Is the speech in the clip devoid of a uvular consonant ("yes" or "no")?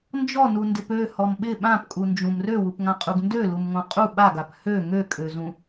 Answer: no